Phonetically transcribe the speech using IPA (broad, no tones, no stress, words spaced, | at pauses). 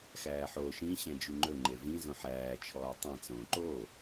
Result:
xæːħo ʃĩ ɕɛ̃d͡ʒyŋ͡ǃɵ ŋ͡ǃevĩ zõħæː t͡ʃʰɔːtˤɛ̃ t͡sõːǃo